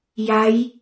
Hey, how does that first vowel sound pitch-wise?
rising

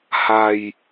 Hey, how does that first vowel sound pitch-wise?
low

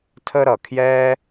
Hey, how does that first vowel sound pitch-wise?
high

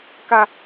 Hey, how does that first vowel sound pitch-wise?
high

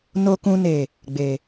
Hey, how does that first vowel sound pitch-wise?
low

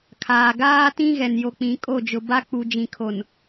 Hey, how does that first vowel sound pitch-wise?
low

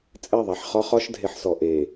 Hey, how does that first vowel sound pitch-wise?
falling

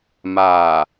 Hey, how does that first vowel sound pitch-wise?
low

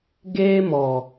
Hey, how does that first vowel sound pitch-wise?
high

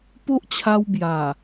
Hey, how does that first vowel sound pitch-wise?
high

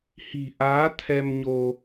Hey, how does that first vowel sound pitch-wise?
low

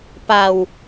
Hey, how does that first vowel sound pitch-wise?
low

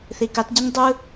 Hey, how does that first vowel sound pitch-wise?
low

